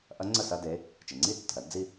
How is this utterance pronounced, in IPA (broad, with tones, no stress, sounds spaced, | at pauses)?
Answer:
ʔ ɐ˧˥ ŋ͡ǀ ə˥˩ s ɐ˥˧ d e˧˥ | t͡ʃ ɪ˩ ŋ͡ǀ i˥˧ tː ə̤˩ ɾ ɐ˧˥ d d͡z i˥˧